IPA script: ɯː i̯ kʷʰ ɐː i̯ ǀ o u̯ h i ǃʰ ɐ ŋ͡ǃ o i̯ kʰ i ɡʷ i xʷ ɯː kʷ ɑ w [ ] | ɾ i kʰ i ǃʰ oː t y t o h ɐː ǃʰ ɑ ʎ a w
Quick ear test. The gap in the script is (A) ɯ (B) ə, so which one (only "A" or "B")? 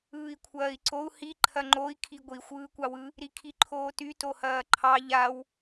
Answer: A